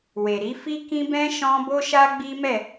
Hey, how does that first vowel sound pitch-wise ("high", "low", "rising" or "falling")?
low